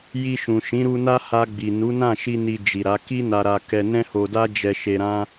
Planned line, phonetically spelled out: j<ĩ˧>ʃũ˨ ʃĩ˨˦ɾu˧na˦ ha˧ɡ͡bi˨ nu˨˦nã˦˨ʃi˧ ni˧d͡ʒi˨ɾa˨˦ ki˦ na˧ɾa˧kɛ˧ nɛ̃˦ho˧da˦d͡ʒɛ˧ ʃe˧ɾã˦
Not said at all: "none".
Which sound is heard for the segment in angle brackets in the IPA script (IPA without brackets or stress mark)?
i˧